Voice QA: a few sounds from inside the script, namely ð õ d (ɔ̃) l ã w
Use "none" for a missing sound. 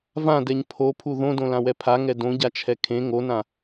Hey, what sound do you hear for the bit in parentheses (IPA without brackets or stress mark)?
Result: õ